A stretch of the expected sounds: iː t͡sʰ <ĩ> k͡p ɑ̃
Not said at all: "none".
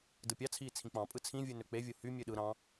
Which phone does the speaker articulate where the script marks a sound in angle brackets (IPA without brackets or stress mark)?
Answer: ĩ